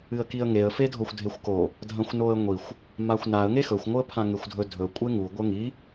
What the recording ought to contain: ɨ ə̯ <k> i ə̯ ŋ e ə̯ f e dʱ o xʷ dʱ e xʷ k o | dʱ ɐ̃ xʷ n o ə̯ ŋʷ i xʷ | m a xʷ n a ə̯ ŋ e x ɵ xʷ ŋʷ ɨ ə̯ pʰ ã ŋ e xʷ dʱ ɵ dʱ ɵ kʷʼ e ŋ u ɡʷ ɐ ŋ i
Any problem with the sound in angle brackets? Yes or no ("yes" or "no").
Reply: no